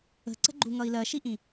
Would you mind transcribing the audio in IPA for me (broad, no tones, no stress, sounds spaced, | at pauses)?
ə̤ ǀ ə̤ ɡ͡ǃ u ŋ ʌ i̯ l ɜ ʃ i ʔ ĩ